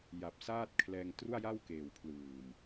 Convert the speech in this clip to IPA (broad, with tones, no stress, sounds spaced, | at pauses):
j a˨˩ p̚ s aː˥˩ t̚ kʰ l ɛː˧ ŋ t r u˥˩ a̯ j a˥˩ w k eː˨˩ w pʰ l ɯː˨˩ m